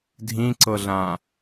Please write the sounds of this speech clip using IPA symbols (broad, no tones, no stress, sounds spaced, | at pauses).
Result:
dʱ ĩ ǀ ɤ ɮ ã